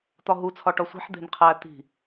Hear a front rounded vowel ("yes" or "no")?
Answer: no